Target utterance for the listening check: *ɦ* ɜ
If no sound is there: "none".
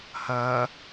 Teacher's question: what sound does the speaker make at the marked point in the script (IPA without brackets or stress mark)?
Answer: h